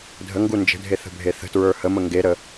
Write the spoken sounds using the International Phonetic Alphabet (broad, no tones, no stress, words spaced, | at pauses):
dʱəŋɡu nd͡ʒə̤dʱe θə̤bʱeθə̤tɹə˞ həmə ŋɡeɾə